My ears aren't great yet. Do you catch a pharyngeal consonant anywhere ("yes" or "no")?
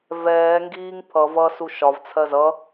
no